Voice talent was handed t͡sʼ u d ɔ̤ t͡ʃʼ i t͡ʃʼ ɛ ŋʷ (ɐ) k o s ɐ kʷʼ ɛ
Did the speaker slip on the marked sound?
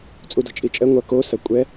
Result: no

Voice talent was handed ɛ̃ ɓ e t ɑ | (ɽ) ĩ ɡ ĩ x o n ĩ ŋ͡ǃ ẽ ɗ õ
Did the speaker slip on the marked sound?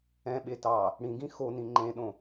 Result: no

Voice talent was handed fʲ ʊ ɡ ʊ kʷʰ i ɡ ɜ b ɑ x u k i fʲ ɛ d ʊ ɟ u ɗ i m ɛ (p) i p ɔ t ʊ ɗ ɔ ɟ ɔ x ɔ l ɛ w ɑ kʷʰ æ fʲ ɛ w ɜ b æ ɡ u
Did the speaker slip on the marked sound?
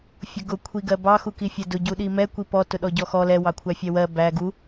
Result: yes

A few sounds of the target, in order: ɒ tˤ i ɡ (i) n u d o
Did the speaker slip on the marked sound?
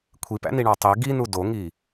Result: no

